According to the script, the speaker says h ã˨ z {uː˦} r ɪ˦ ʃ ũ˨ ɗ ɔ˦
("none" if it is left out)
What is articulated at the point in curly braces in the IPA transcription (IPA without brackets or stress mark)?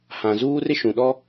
uː˦